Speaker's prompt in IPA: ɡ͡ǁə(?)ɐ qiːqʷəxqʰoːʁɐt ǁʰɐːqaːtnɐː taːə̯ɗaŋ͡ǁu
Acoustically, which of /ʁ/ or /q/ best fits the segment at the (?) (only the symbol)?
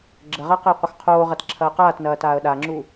ʁ